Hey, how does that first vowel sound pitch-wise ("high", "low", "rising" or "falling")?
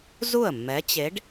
falling